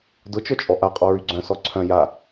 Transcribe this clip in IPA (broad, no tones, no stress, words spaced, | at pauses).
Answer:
dʊt͡ʃœt͡ʃʼɔ ʔaqʼɔ ɹyɡ͡ǀœ̃sɔ ǀʰœ̃ ja